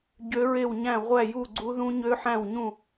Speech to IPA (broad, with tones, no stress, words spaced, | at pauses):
ɟø˦˥ɹe˥˨wɲæ̃˥˨ ʁʷæ˥˨ju˥˨ɡ͡ǀu˦˥ðũ˦˥ ɲø˦˥ħæ̃˥˨wɲũ˥˨